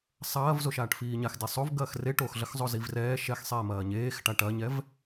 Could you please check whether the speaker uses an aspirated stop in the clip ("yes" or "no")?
no